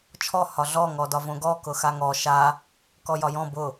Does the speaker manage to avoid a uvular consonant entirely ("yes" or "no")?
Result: yes